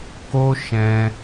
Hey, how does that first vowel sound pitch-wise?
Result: high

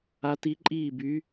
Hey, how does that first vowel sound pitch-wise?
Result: rising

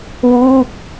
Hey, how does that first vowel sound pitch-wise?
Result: falling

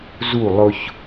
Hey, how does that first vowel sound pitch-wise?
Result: falling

